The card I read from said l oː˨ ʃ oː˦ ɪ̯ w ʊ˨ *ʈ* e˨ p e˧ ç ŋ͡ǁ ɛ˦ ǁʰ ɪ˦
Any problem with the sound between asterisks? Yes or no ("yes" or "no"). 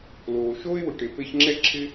no